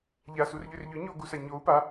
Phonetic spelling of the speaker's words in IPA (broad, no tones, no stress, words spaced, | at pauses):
ʎasurʎʏr ʎʏ ɲoɡusa ɲou̯ pa